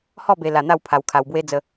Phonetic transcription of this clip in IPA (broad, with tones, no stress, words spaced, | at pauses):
hɔ˥˧be˧ la˧n̪a˥˧w pʰa˧wkʰa˧wbwe˦ d͡zə˧